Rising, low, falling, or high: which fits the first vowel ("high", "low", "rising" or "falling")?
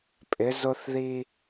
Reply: rising